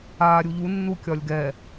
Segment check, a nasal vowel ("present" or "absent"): absent